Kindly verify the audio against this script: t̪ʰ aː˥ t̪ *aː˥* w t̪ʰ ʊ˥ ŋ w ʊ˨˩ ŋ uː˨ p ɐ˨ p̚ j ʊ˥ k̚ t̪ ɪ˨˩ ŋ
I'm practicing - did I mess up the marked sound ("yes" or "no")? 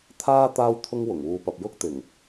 no